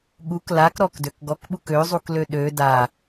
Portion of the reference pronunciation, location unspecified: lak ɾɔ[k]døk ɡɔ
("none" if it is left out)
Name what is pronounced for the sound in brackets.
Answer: k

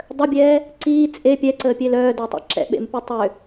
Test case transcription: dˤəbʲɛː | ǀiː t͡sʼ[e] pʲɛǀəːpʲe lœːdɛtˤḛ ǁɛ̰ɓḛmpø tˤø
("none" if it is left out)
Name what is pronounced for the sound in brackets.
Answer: e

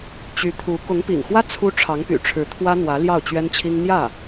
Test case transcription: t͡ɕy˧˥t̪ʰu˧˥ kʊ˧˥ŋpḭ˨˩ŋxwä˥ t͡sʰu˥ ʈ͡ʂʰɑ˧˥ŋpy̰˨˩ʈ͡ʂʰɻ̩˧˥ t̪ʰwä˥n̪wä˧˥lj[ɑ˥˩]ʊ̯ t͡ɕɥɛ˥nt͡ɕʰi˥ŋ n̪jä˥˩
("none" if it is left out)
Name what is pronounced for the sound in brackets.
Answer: ɑ˥˩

